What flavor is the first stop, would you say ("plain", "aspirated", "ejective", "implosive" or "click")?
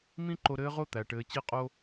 click